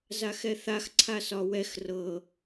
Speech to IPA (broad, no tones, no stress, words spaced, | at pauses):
zaxɛθax ǀʰasɒwɛx rɤ